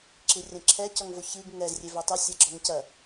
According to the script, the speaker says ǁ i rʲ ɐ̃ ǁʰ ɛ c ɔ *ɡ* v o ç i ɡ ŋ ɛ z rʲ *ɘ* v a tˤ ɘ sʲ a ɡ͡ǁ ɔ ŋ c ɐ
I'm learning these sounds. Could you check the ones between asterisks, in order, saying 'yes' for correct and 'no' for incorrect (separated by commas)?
no, no